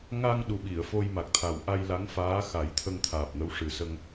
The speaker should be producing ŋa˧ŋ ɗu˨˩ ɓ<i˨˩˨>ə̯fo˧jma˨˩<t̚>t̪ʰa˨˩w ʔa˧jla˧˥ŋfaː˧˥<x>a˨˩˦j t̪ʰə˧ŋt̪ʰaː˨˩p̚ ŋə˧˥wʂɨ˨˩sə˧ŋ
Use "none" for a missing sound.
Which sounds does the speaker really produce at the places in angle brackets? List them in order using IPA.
i˨˩˨, k̚, x

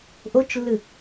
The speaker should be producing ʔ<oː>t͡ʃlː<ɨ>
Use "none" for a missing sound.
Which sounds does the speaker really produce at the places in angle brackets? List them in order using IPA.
o, ɨ

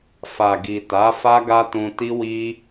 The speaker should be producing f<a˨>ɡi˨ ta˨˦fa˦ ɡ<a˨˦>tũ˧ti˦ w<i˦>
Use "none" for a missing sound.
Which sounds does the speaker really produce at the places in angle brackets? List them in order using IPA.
a˨, a˦, i˦

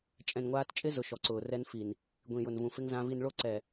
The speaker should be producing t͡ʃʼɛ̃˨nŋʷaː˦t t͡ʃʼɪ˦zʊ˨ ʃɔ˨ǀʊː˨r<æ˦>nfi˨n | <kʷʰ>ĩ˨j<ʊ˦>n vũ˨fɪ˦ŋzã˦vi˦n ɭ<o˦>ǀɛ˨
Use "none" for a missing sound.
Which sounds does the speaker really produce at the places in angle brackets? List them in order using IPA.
ɛ˦, ɡʷ, ʊ˨, o˦

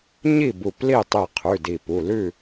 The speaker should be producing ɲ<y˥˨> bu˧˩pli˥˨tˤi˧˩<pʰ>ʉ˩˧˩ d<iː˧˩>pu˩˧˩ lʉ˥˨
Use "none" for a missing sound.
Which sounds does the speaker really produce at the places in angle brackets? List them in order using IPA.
i˥˨, qʰ, i˧˩

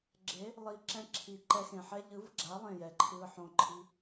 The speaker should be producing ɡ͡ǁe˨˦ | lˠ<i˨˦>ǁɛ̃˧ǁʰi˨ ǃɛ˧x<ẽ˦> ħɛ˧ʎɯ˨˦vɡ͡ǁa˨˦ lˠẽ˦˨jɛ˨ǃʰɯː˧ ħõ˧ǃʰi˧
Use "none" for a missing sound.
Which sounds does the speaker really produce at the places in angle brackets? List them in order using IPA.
i˨˦, ẽ˨

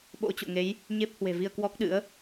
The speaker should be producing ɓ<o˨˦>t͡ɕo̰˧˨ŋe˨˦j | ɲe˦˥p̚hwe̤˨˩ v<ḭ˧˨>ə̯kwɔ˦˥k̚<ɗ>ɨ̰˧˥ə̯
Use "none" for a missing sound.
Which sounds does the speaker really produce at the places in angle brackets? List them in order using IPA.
o̰˧˥, i˧, ɗ

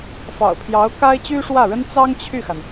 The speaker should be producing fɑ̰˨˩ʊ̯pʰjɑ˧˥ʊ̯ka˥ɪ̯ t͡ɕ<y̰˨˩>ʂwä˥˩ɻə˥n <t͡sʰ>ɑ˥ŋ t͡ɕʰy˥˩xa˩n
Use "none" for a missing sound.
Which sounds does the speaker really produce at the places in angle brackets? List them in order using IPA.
y˥, t͡s

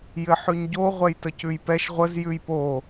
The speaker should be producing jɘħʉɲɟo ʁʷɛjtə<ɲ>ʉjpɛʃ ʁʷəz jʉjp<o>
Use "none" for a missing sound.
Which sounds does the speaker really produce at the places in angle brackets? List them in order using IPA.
c, o

